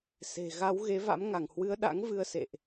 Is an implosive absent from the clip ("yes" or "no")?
no